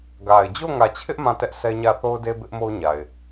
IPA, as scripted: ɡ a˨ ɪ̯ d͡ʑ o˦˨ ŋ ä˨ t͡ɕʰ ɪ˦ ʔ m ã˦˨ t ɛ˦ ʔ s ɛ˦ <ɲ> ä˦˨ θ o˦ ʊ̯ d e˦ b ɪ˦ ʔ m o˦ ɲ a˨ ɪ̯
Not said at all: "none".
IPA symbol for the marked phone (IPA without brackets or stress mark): ɲ